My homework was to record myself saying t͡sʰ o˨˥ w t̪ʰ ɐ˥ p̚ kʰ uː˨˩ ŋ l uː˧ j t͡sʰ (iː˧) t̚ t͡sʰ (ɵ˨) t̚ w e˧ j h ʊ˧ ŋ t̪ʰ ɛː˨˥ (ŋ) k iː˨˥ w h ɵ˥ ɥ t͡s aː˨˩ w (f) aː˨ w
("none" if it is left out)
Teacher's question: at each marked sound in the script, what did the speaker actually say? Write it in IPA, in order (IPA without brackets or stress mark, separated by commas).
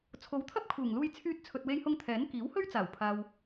yː˧, ɵ˨, n, pʰ